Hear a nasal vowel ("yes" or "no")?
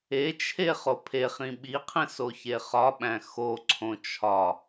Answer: yes